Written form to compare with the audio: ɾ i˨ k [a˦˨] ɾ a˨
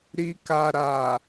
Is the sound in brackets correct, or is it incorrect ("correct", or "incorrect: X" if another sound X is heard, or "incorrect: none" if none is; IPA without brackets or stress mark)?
incorrect: a˨